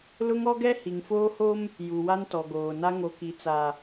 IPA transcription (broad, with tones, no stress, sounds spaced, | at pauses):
l ʊ˦ ŋ ɔ˦ ɡ ɛ˦ h i˨ ŋ f oː˦ h o˦ m | j u˨ w a˦ n t ɔ˨ ɡ oː˨ n a˦ ŋ o˨ k i˨ t͡s a˨